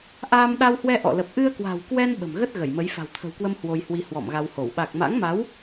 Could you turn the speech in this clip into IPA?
ʔ aː˧ m ɗ a˧ w h w ɛ˧ ʔ ɔ̰˧˨ l ə˨˩ p̚ ʔ ɨ˧ ə̯ k w a̤˨˩ w k w ɛ˧ n ɓ ə̤˨˩ m ɣ ə˦˥ t̚ ɣ ə˧˩ j m ə˨˦ j f a̤˨˩ w t̪ʰ ə̤˨˩ w k w ə˧ m h w o˧ j h w i˧ h w ɔ̰˧˨ m ɣ a˧ w h o˧˩ w ɓ a˨˩ k̚ m a̰˧˥ ŋ m a˨˦ w

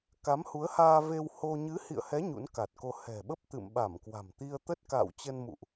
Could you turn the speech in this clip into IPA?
k a˨˦ m h u˨˦ ə̯ h aː˧ v e˧ w h o˧ ɲ ɨ˨˦ h ḭ˧˨ ə̯ h ɛ˨˦ ɲ ṵ˧˥ n k a˨˩ t̚ k o˧ h ɛ̤˨˩ ɓ ə˦˥ p̚ t̪ ɨ̰˧˨ m ɓ a˧˩ m k w a̤˨˩ m t̪ i˧ ə̯ t̪ ə˦˥ t̚ k a̰ː˧˨ w t͡ɕ ə˧ n m ṵ˧˨ ʔ

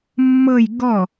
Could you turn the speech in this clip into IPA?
mː ɤ j ɡ ɔ

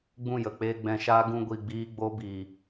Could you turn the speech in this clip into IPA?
ɡ͡b ũ˦˨ j ə˨ k͡p eː˧ ɡ͡b ɛ̃˧ ʃ aː˦ ɡ ũ˦ ɡʷ i˧ ɡ͡b iː˦ ɡ͡b o˦ b iː˨

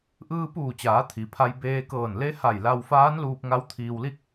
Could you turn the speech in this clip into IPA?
ʔ ɯː˧ p uː˧˩ t͡ɕ aː˩˧ t̪ʰ i˩˧ pʰ a˧ j b eː˧ k ɤː˧˩ n l e˧˥ h a˧˩ j l a˧ w f aː˧˥ n l uː˧ p̚ ŋ a˧˥ w t̪ʰ iː˧ w l i˥˨ k̚

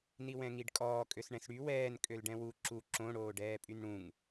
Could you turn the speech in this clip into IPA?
n i w ɛ̃ ŋ i ɖ kʼ ɔː kʼ ø s ɳ ɛ̃ s ɽ y w ɛː n kʼ ø l ɖ ɛ̃ w u ǁ u ǁ õ ɽ oː ɖ ɛː pʼ y n ɽ ũ ŋ

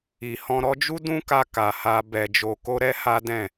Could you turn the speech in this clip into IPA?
i˨ h ɔ̃˧ ɾ ɔ˦ d͡ʒ u˦ d ũ˦ k a˧ k a˨ h a˧ b ɛ˧ d͡ʒ o˧ k o˦ ɾ ɛ˦ h a˦ d ɛ̃˦˨

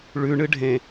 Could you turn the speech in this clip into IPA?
ɭ ʉ ɳ ɨ ɖʱ ẽ

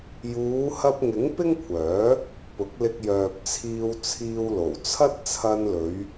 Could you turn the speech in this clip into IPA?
j uː˨˧ h ɐ˧ p̚ ŋ ɪ˨˥ ŋ p ɪ˥ ŋ kʷʰ œː˨˥ | p ʊ˨˥ k̚ l ɪ˧ k̚ j œː˨ p̚ t͡sʰ iː˧ w t͡sʰ iː˧ w l o˨˩ w t͡sʰ ɐ˥ t̚ t͡sʰ ɐ˧ n l ɵ˨˧ ɥ

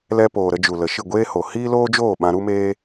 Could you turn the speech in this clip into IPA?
l ɛ˧ p oː˨ ɾ ə˧ d͡ʒ u˨ l ə˨ ʃ ɨ˦˨ ɡʷ eː˦ h o˨ h iː˦ l oː˦ d͡ʒ oː˦˨ ɓ ã˧ ɾ u˦ m eː˦

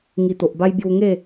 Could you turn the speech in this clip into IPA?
ŋ i˨˩ t̪ o˨ ʔ b a˧ j b j u˧ ŋ e˥˧

